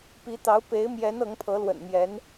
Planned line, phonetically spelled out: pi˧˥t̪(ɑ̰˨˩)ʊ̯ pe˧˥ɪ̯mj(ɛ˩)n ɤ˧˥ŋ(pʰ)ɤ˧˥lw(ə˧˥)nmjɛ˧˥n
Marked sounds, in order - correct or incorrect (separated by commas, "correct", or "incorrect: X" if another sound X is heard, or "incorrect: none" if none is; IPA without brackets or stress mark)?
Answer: incorrect: ɑ˧˥, incorrect: ɛ˧˥, correct, incorrect: ə̰˨˩